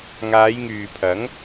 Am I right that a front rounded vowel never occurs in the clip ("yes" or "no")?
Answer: no